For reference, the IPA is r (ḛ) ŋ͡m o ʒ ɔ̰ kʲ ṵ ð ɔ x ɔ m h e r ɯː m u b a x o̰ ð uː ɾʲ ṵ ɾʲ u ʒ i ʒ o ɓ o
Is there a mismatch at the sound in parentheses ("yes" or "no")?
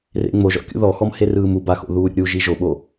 no